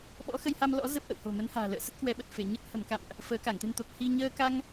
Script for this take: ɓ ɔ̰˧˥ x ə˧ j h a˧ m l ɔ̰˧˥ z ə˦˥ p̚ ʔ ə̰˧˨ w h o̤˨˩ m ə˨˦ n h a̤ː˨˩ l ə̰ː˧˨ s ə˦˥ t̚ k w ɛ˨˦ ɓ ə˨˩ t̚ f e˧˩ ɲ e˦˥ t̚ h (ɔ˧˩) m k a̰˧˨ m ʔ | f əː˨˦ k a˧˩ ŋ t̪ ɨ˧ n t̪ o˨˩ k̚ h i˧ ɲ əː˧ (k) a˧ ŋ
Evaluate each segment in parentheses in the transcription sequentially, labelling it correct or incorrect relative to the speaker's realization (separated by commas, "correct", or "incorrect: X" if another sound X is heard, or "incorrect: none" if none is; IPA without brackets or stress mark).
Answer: incorrect: ə˧˩, correct